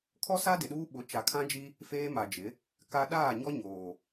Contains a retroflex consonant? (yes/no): no